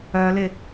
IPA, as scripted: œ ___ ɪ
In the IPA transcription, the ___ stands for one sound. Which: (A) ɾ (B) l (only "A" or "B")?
B